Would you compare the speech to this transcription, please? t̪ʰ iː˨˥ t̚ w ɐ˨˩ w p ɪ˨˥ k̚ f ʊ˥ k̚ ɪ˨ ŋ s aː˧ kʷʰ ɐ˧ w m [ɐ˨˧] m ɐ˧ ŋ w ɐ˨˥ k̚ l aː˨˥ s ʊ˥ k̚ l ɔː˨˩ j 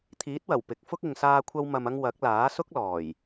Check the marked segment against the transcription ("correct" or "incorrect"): incorrect